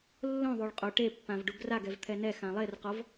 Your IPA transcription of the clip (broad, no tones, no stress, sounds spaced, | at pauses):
lː õ ðˤ o ɭ qʼ o ʈ e pː ã v ɖ u ɡ r a ɡ ɛ v t̪ʰ ɛ n ɛ x ã lˠ e r q ɔ v